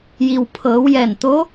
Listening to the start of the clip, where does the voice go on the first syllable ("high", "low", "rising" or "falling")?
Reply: low